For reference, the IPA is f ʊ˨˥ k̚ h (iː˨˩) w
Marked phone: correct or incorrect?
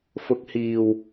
correct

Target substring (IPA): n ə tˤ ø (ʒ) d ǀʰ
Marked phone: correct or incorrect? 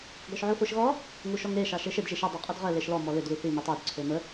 incorrect: none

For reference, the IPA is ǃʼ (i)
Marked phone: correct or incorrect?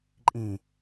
incorrect: ĩ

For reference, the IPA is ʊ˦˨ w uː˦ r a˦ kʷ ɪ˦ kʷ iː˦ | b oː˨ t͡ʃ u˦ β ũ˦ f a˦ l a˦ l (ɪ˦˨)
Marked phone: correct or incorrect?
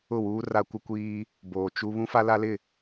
correct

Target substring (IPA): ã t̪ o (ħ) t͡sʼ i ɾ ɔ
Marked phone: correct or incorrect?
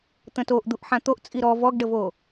incorrect: ʔ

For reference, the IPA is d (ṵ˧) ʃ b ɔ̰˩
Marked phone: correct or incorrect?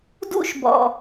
correct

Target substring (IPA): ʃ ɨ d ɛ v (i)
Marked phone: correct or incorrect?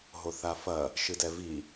correct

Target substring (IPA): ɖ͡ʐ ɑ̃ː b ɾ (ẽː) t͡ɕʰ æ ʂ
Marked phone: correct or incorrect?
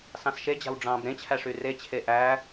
incorrect: ẽ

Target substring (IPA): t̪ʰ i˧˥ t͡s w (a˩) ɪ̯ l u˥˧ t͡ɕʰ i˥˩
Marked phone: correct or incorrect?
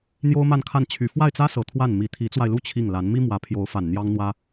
incorrect: a˧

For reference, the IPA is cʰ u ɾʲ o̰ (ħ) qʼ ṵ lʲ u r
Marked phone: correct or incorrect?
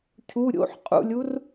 correct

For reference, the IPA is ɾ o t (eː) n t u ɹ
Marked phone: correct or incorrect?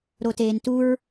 correct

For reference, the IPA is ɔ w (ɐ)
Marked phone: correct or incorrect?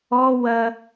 correct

